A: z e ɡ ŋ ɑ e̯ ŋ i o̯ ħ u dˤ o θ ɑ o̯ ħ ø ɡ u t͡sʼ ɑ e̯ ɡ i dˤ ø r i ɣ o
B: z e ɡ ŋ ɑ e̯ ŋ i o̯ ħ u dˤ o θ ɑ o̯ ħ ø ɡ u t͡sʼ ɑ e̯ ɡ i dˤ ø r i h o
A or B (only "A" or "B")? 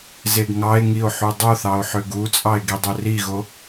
A